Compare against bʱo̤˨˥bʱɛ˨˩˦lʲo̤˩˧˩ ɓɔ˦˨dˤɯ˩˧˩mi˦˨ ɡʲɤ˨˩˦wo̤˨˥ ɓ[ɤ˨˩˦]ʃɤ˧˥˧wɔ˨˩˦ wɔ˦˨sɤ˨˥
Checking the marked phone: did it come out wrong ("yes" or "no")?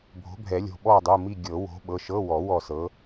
yes